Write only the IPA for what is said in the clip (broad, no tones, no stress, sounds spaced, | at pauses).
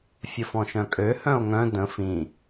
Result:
fʲ ə f ɔ̃ ʃ œ̃ kʼ ø h œ̃ o̯ ŋ œ̃ d ə̃ f ĩ